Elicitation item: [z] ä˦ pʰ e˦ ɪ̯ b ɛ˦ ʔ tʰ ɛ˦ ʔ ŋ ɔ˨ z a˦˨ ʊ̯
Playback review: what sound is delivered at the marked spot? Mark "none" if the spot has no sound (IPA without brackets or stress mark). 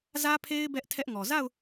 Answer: z